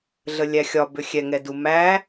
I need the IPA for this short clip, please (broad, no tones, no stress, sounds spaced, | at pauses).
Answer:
ɮ ə lʲ æ xʲ ɒ b ʏ xʲ ɛ ŋ ɛ d u m æ